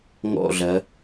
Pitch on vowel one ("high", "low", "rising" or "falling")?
falling